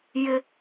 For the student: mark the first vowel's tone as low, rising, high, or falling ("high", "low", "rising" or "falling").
high